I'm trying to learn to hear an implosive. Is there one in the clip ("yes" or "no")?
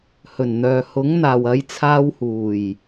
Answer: no